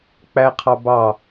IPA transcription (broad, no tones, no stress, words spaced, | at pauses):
k͡pæqʰɑbɑ